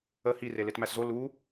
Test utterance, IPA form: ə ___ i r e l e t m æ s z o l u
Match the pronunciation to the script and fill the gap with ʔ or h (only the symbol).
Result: h